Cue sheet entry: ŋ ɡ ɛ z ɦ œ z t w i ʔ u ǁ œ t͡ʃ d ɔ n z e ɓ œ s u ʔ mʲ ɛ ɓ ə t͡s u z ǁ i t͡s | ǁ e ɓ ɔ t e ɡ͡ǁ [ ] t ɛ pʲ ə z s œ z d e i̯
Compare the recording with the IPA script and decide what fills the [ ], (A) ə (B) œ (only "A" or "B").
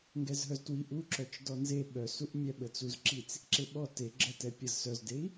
A